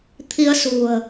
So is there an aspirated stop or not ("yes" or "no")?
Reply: yes